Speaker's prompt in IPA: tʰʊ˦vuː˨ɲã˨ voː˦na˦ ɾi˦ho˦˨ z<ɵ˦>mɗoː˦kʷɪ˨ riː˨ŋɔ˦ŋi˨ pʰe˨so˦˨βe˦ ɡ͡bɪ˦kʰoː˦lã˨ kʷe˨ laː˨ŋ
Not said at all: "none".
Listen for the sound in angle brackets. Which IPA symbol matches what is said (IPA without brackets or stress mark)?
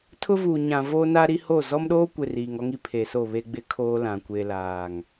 ɔ˦